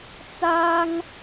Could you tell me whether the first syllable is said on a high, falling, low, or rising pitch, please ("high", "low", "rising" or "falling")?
high